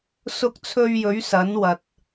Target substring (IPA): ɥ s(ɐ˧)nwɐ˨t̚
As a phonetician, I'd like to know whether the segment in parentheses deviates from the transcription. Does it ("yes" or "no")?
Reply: yes